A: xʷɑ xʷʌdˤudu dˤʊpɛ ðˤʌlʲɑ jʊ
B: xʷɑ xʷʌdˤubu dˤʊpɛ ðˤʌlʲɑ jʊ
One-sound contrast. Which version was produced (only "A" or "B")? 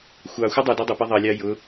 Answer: A